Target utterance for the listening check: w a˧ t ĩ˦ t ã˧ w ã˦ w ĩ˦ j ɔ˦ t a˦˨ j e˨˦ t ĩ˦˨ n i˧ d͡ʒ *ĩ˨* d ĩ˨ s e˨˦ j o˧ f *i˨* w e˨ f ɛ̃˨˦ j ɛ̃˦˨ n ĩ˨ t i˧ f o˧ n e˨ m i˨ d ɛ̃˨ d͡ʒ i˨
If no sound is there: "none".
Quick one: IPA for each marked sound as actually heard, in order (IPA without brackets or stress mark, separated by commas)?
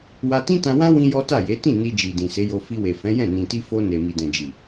i˨, i˧